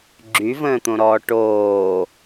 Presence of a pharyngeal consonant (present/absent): absent